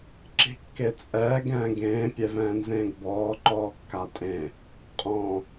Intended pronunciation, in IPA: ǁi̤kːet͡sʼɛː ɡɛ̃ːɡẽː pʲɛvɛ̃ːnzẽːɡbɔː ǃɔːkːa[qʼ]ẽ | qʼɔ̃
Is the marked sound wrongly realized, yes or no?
yes